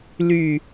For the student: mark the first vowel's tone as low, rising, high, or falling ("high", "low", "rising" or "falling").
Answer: falling